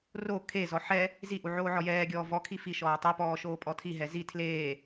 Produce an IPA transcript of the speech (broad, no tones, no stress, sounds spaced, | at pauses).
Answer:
r o kʰ e z ɔ ħ ɛ | z i ʔ u ʕ oː ʕ ɔ j ɛː ɡʲ ɔː v ɔ kʰ i f i ʃ ɔː tˤ u p ɔː ʃ oː pʼ ɔ tʰ i ɦ ɛ z i tʰ l eː